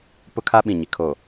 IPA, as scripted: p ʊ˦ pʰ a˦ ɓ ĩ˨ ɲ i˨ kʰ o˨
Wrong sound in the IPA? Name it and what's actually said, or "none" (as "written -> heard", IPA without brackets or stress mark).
pʰ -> kʰ